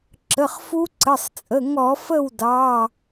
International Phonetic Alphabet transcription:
ǁ ə˩˧˩ χ f u˦˥ ǀ ə˩˧˩ sˤ t͡sʼ ə˩˧˩ ŋ ɔ˧˩˧ f ə˥˨ w d ɑ˩˧˩

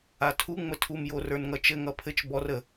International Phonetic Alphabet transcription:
a tʰ u ŋ͡m ə tʰ u m j o r ə˞ n ŋ ʌ t͡ʃ ɘ ŋ ʌ pʰ ɘ t͡ʃ b ɔ r ə

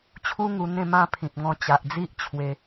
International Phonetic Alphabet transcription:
t͡ɕʰ u˦ ŋ u˧ n̪ ẽ˧ m ã˦ pʰ ĩ˨ p̚ ŋ ɔ̃˧ t͡ɕ a˨ ʔ d͡z i˦ ʔ t͡ɕʰ w e˧

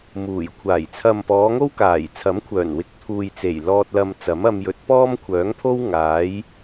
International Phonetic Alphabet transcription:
m uː˨˩ j kʷʰ aː˨˩ j t͡sʰ ɐ˨ m p ɔː˨˧ ŋ o˥ w k aː˨˩ j t͡sʰ ɐ˨˥ m kʷʰ œː˨˩ n w ɪ˨˥ k̚ t̪ʰ uː˨ j t͡s e˨˩ j l ɔː˧ t̚ l ɐ˧ m t͡s ɐ˨˥ m ɐ˧ m j ɵ˨˥ t̚ p ɔː˥ m kʷʰ œː˨˥ ŋ pʰ o˥ w ŋ aː˨˥ j

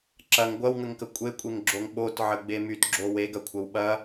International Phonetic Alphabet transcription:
ǁ ɐ ŋ ɡʷ ɐ w ŋ ə ŋ k ə kʷʼ e kʷʼ e ŋ ɡ͡ǁ o ŋ ɓ o t ʕ ə ɡ͡b e m y t ɡ͡ǁ o w e ɡ ɐ kʷʰ ɐ w ɓ ɐ

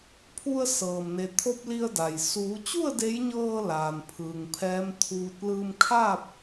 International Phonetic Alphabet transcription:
pʰ u˧ ə̯ s ɤː˩ m n e˩ t̪ʰ o˧ p̚ l i˧ ə̯ d a˩ j s uː˩˧ t͡ɕ u˥˨ ə̯ d e˧˥ j ɲ ɤː˧ l aː˩ n pʰ ɯː˩ ŋ pʰ ɛː˧˥ m t̪ʰ uː˧ t̚ l ɯː˧ m kʰ a˥˨ p̚

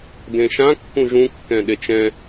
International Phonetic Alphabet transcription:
d ẽ ʃ ã kː ũ ʒ ũ kː ɛ̃ ɗ e t͡ʃ ɛ̃

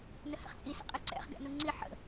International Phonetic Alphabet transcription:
n ə h ɛ̰ χ t͡sʼ i s ɛ̰ qʼ e ǀ ɛ̰ χ ɡ ɛ̰ n u ŋ͡ǀ i ħ ə̰

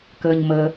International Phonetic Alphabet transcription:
k əː ɲ m əː

